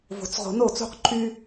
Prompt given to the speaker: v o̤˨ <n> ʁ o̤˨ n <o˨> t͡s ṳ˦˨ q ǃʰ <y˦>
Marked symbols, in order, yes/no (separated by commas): no, no, yes